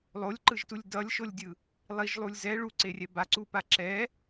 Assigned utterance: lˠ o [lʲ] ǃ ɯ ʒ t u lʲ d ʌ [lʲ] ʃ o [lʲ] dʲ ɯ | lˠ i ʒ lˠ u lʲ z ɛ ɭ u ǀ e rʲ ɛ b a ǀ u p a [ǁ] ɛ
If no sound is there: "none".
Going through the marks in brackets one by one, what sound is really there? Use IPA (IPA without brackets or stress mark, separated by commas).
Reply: lʲ, lʲ, lʲ, ǁ